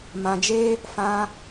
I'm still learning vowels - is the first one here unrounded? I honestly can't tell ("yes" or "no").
yes